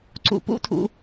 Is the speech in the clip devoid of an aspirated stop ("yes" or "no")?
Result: no